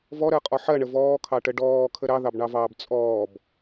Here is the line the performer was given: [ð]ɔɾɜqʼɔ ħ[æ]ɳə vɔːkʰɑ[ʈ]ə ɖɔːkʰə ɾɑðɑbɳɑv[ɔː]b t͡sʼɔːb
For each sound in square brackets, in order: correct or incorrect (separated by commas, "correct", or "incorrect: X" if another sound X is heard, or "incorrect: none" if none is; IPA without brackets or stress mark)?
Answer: incorrect: v, incorrect: ɜ, correct, incorrect: ɑː